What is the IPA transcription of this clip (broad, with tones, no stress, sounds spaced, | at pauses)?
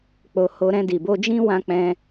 k͡p o˧ h o˧ ɾ ɛ̃˧ d i˨ b o˧ d͡ʒ ĩ˦ w ã˧ k͡p ɛ̃˧